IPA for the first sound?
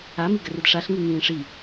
a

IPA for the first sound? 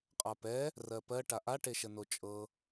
qʼ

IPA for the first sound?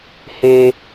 h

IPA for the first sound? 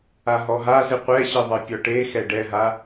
a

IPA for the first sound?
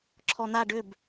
ǁʰ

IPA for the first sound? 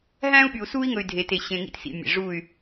ɦ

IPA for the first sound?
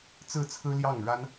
t͡s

